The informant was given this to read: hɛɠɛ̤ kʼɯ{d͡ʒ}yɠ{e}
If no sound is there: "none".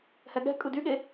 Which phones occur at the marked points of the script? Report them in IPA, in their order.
d, e

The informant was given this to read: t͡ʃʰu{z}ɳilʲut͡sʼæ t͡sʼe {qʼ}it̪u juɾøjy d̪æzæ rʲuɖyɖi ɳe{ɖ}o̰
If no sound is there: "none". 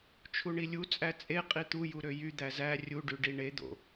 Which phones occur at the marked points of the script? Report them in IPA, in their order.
none, qʼ, d̪

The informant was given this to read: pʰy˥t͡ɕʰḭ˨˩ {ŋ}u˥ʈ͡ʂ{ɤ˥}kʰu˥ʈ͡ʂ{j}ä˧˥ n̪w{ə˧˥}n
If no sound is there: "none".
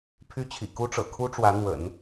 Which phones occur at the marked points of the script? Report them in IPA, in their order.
k, ɤ̰˨˩, w, ə̰˨˩˦

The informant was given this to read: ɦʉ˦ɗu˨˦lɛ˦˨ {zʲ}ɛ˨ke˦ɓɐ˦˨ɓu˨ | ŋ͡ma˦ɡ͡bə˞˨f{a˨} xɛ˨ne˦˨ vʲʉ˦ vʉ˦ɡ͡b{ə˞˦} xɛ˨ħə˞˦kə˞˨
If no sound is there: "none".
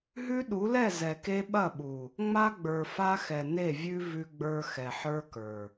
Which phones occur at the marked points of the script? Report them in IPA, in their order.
z, a˦, ə˞˦

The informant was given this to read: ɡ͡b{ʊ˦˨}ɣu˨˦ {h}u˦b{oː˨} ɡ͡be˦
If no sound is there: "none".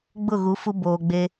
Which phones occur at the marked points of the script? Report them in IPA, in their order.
ʊ˦˨, f, oː˨

